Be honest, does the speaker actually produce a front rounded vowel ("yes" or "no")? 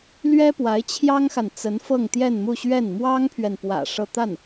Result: no